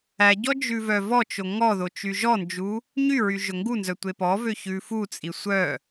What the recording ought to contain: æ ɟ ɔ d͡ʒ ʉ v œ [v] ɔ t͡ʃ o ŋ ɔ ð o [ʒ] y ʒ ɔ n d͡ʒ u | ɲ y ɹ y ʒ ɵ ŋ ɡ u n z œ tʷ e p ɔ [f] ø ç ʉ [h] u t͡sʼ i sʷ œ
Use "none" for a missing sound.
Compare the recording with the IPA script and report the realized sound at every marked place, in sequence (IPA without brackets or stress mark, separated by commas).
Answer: v, t͡ʃ, v, f